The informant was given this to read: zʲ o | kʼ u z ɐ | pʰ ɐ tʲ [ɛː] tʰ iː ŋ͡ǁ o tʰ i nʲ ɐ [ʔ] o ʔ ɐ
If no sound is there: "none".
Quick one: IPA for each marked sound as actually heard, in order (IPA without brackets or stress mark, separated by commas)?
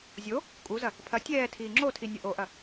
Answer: ɛː, ʔ